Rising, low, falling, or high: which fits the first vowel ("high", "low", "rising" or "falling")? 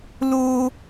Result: high